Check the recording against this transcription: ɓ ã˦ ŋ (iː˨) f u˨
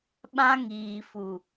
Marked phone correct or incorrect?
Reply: correct